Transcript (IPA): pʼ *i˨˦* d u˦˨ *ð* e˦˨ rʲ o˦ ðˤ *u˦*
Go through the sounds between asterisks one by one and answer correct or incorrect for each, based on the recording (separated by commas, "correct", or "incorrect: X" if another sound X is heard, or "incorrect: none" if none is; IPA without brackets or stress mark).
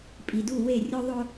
incorrect: i˨, incorrect: w, incorrect: o˦